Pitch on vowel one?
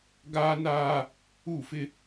high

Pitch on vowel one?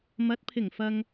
rising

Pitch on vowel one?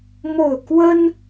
falling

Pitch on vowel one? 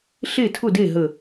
falling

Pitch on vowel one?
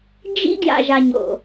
high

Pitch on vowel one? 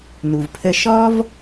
low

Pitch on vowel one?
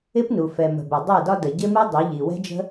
high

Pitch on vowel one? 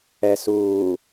low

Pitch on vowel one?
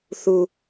low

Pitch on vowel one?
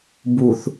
low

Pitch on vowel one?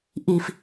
high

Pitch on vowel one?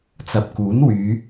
low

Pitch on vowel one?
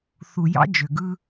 low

